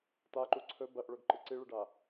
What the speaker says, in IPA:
t a ǃ u ǀʰ ɵ b ɐ ʔ ɭ ɵ ɡ ǃ ɨ ǀ i ɭ ɨ ɖ a

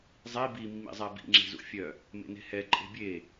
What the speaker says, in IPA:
zˤ i b i mː ḭ zˤ ɛ b ḭ ŋ͡ǁ e̤ z ṵ fʲ œ | m ḛ n e̤ h ɛ ǃʼ e̤ bʲ e

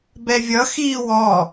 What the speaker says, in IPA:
b ɛ vʲ ʌ x iː w ɔ

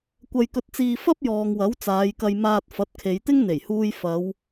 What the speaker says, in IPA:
kʷ ɐ˧ j k ɵ˧ t̚ t͡s iː˧ f ɐ˥ p̚ j ɔː˨ ŋ w ɐ˨˥ w t͡s aː˨˧ j k ɐ˧ j m aː˧ t̚ f ɐ˨˥ t̚ kʰ e˨˧ j t̪ ɪ˥ ŋ n̪ e˨˩ j h uː˧ j f ɐ˨˧ w

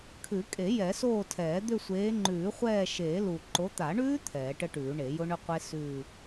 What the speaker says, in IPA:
kʰ ʉ˨˩˦ kʼ e˨˩˦ j ɛ˨˩˦ s oː˦˨ tʰ ɛː˨˩˦ d̪ ʏ˦˨ sʷ eː˨˦ ŋ͡ǃ ʉː˨˩˦ χʷ ɛː˦˨ ʃ eː˨˩˦ l u˨˩ ǃ o˨˦ t̪ a˨˩˦ ɳ ʉː˦˥ t̪ʰ ɛː˨˩˦ ʈ ə˦˥ ʈ ʉː˨˩˦ ɳ e˨˩˦ j ʊ˦˥ ɳ ʏ˦˥ qʷ e˦˥ s ʉː˦˨

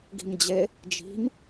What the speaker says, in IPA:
ɡ i̤ m d͡ʑ e | d͡ʒ i̤ m

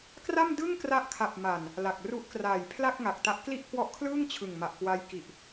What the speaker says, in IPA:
k r a˥˩ m d ɯ˥˩ ŋ k r a˦˥ ʔ kʰ a˨˩ p̚ m a˨˩ n | l a˨˩ k̚ r u˦˥ ʔ k r aː˨˩ j pʰ l a˥˩ k̚ ŋ a˨˩ k̚ t a˦˥ ʔ k l i˥˩ ʔ k w ɔ˦˥ ʔ kʰ l ɯː˥˩ ŋ t͡ɕʰ ɯ˨˩ ŋ m a˨˩ ʔ k w a˦˥ j k i˨˩ ʔ

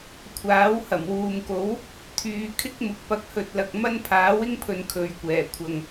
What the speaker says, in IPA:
kʷʰ aː˨˥ w h ɐ˨˩ m w uː˨ m k o˨˥ w | t̪ʰ yː˨˧ kʰ ɪ˥ k̚ m ʊ˨ k̚ p ɐ˨˥ k̚ h ɵ˨ t̚ l ɐ˨ k̚ m ɐ˥ n pʰ aː˨˥ w ɪ˥ ŋ pʰ ɵ˨˧ n kʰ ɵ˨˧ ɥ kʷ ɛː˨˩ kʷʰ ɐ˨ ŋ

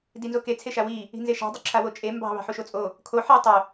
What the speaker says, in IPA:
d i n z o k e t͡sʰ e ʃ a w i | i̤ n z e ʃ ɑ̤ dˤ o ǁʰ a w o t͡ʃʼ e m b ɑ̤ β ɑ̤ ħ u ʃ o t͡sʼ o | kʰ o ħ i tˤ o

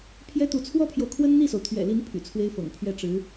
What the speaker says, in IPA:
pʰ j ɛ˥ t̪ u˧˥ t͡sʰ w ɔ˥ pʰ j o˨ ʊ̯ kʰ w ə˥ n n̪ i˥˩ s o˩ ʊ̯ t̪ʰ ɥ ɛ̰˨˩ l i˧˥ n pʰ y̰˨˩ t͡sʰ w e˥ ɪ̯ f ɤ̰˨˩ ŋ pʰ ɥ ɛ˥˩ ʈ͡ʂ ɻ̩˧˥

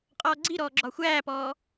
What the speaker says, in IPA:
qʼ ɔː ɡ͡ǀ i ɾ ɔː ɡ͡ǁ ɒ xʷ æː p ɔː

